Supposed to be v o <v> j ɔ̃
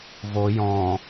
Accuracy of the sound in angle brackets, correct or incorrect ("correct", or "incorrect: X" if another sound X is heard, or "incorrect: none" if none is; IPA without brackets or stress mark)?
incorrect: none